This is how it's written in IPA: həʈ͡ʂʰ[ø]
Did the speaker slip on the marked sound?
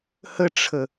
yes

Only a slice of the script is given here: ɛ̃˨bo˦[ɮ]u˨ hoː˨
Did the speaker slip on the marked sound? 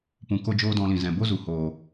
yes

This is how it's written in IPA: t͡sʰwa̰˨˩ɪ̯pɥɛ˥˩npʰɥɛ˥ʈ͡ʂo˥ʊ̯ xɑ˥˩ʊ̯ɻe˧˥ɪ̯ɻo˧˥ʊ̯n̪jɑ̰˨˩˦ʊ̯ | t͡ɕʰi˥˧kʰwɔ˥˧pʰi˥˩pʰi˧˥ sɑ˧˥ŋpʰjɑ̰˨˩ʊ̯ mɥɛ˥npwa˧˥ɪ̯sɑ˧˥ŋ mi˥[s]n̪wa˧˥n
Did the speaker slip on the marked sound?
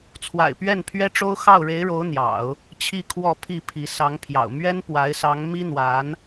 yes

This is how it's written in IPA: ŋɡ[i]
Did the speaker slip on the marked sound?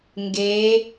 yes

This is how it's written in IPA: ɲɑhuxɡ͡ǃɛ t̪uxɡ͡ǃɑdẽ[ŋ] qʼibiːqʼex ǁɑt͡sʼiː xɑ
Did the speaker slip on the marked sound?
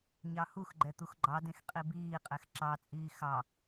yes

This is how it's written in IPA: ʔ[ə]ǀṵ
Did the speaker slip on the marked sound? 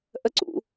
no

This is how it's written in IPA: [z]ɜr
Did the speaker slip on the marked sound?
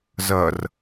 no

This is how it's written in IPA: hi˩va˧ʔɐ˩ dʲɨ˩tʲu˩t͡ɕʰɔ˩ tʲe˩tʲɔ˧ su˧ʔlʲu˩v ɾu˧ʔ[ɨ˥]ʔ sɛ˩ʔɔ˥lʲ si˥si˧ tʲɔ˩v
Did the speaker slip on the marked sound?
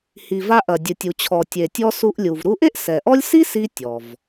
yes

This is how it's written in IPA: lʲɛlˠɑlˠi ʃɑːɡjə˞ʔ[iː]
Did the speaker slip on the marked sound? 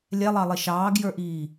no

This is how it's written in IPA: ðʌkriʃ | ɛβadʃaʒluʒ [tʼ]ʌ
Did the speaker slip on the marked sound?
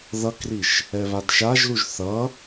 yes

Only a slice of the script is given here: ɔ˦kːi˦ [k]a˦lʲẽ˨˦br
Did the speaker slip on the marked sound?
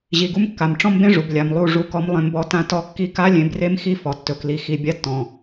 no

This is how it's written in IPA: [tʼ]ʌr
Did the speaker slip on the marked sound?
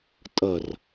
no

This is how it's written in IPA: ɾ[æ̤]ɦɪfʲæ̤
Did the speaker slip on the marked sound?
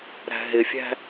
no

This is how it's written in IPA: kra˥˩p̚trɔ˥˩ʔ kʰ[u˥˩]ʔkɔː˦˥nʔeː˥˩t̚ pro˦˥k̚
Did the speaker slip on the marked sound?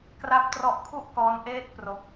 no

